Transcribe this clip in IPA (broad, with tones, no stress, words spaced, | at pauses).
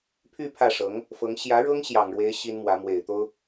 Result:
pʰy˥˧ pʰä˥˩ʂɤ˧˥ŋ | fɤ˧˥ŋ ɕjä˧˥ɻɤ˥ŋ ɕjɑ˨˩ŋɻwe˧˥ɪ̯ ɕi˥nmwä˧˥ mwe˨˩ɪ̯t̪o˥ʊ̯